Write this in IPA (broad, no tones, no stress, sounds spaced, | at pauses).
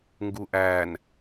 ŋ ɡ u ʔ æ n